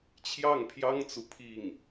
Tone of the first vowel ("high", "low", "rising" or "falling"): falling